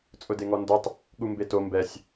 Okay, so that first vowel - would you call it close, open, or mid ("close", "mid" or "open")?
close